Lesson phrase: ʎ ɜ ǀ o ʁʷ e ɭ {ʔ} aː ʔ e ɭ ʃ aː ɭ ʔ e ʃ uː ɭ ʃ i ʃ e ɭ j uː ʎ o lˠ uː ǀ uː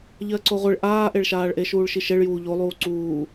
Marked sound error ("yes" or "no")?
no